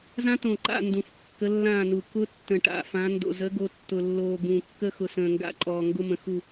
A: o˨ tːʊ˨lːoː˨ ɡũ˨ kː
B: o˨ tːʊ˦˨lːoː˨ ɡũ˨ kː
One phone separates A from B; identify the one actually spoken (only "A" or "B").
A